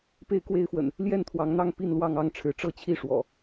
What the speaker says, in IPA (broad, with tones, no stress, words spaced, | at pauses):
pe˥˨ɪ̯kwe˥˨ɪ̯fwə̰˨˩n | ljɛ˥˨nt̪ʰwɑ˨˦ŋn̪ɑ˥˨ŋ pi˥˨nlwɑ˥˨ŋ ɑ˦ŋʈ͡ʂʰɻ̩˨˦ ʈ͡ʂɤ˥˨t͡ɕʰi˥˨ ʂwɔ̰˨˩